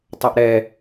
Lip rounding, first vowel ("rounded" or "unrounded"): unrounded